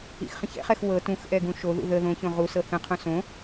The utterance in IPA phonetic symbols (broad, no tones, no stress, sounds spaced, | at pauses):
ḭ x χ ə̃ ç ɛ̰ χ ɛ x w ɤ t ũ x ʔ ɛ ɡ ũ ʃ o ð ṵ ð ə ð õ ç õ ʁ u s ɤ θ ə̃ qʰ õ s õ